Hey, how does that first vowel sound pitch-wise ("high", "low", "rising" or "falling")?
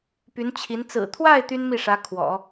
rising